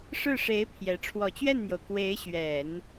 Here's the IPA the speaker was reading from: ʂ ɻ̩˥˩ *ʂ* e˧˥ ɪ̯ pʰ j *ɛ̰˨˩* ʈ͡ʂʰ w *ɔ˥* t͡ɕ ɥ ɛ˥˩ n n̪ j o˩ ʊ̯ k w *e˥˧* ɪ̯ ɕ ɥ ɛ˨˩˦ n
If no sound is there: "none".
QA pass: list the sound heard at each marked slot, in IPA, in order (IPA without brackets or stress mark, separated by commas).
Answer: ʂ, ɛ˧˥, ɔ˨˩, e˧˥